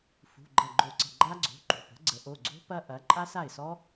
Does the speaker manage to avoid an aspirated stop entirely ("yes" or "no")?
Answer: yes